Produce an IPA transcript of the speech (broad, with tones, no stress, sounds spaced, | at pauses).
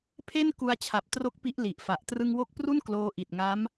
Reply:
pʰ e˥˩ n k u˧ a̯ t͡ɕʰ a˨˩ p̚ t r o˦˥ k̚ p i˦˥ ʔ l i˨˩ ʔ f a˨˩ ʔ t r ɯ˧ ŋ w o˦˥ k̚ p r u˥˩ n k l oː˦˥ ʔ i˨˩ t̚ ŋ a˦˥ m